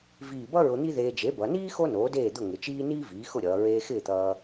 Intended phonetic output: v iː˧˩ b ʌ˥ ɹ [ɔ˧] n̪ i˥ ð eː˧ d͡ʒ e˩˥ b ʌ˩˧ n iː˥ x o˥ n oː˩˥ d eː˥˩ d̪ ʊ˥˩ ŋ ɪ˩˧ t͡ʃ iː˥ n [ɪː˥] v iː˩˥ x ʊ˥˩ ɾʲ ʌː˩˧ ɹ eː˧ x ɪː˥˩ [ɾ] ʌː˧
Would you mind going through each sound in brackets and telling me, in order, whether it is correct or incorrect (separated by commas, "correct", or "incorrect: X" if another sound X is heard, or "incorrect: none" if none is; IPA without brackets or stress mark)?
incorrect: ʊ˧, incorrect: iː˥, incorrect: t̪